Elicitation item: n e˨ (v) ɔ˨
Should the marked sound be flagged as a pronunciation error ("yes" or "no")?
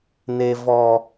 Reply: no